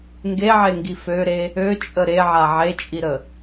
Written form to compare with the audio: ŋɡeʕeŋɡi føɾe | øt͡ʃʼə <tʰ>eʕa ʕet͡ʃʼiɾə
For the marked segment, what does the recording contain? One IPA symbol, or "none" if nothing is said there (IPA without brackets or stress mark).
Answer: ɾ